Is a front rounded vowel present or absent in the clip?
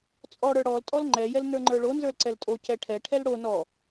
absent